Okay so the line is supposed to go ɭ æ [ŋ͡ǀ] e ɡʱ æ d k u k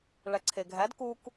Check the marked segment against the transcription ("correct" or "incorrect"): incorrect